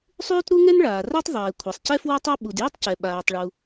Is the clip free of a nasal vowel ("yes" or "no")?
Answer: yes